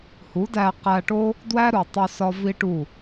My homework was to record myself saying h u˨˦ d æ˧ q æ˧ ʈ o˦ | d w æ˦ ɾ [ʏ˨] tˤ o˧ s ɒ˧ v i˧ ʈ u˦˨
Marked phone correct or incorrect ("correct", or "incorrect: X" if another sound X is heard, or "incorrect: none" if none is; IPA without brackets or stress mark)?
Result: incorrect: u˨